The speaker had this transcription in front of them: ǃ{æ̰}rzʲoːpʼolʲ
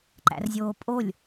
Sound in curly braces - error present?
no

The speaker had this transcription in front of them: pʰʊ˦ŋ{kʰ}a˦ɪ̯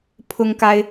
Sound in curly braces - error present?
yes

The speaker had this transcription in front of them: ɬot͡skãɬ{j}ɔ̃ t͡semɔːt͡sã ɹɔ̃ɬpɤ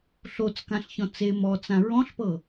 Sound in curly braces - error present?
yes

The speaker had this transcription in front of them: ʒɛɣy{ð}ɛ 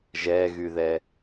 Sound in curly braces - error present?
no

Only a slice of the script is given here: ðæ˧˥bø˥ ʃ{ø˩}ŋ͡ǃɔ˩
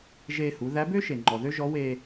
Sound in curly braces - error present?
yes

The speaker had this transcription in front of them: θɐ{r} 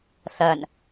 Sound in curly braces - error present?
yes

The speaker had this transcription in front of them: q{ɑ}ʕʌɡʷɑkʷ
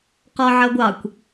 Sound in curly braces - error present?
yes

